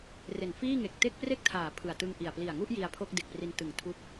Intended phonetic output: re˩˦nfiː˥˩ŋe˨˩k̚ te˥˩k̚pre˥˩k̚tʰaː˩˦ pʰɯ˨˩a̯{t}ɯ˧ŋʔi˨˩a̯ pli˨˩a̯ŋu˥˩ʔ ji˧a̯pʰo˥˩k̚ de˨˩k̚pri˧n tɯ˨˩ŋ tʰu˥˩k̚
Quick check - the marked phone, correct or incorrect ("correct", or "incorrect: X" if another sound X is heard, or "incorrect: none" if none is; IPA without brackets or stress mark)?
correct